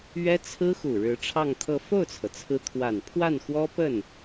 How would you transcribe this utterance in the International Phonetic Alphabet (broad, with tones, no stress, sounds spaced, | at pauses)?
ɥ ɛ˥ t͡sʰ ɹ̩˥ x u˨˩ ɻ ɻ̩˧˥ ʈ͡ʂʰ ɑ˥˧ ŋ t̪ʰ ɤ˥˧ f o˥˩ ʊ̯ t͡sʰ ɤ˩ t͡sʰ ɹ̩˧˥ t̪ʰ w a˨˩ n pʰ w a˥˩ n x w ɔ˥ p ə˥˩ n